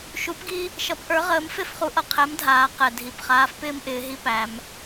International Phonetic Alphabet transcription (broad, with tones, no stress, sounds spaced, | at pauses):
ʃ u˨˥ p ɡ i˦ | ʃ ʌ˨˥ p ʔ ə˞˨˥ ʁ əː˨˥ m f e˦ f χ u˨˥ ʔ ʌ˩ qʰ ɛ˨˥ m dʱ aː˩˧ q ɛ˩ dʱ i˩ p χ aː˨˥ f p ɪː˦ m ʔ ɪː˩˧ ɦ i˦ p æ˩˧ m